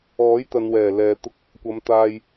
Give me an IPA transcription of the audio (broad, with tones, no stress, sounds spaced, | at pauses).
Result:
ɔː˨˥ j t̪ ɐ˨ n w ɛː˨˩ l ɛː˨ t̪ ʊ˧ k̚ | kʷ ɐ˨˧ m t̪ aː˧ j